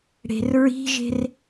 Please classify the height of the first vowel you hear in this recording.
mid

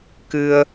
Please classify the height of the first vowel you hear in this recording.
high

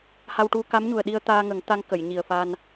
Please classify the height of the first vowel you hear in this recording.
low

